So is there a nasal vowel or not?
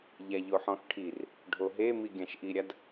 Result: yes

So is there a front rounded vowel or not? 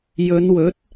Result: no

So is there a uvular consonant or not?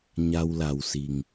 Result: no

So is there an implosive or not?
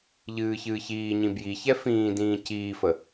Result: no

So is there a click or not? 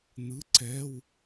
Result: yes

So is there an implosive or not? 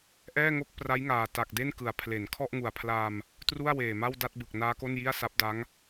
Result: no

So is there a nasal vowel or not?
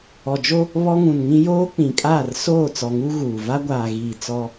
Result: yes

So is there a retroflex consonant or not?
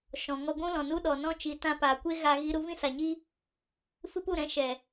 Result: no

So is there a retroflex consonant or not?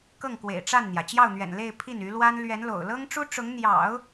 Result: yes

